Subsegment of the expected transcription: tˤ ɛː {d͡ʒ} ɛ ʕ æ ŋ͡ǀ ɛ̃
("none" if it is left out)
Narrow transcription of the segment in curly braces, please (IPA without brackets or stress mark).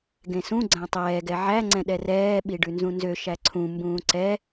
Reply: ɡ